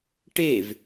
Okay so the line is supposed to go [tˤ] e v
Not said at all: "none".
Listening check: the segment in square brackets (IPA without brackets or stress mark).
ʈ